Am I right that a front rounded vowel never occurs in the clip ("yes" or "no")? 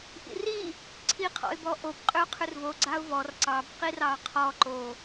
no